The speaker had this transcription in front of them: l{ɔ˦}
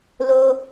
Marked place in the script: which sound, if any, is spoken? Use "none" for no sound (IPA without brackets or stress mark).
o˦